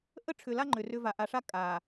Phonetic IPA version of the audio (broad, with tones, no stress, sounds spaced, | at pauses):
ʔ ə˦ ʈ͡ʂʰ ʏ˨ l a˦ ŋ͡ǃ ʏ˨ r ʏ˦ v a˨ ʔ a˨ ʂ a˦ kʼ a˨